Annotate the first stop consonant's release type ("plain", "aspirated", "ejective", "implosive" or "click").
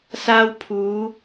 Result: aspirated